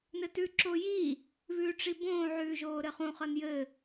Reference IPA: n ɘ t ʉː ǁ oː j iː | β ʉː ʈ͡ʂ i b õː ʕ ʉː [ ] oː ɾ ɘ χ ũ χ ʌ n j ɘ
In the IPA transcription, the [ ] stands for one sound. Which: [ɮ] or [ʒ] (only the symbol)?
ʒ